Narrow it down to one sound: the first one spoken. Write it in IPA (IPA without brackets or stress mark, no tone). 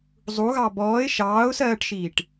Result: zˤ